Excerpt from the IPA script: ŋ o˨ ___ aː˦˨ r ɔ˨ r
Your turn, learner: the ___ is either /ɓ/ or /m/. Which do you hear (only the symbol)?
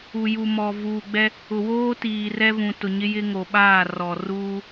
ɓ